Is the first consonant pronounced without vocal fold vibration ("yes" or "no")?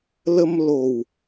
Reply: no